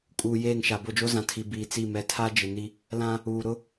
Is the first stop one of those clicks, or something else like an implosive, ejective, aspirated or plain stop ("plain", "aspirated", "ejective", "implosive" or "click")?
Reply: ejective